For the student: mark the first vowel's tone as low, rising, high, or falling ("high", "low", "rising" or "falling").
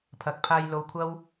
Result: low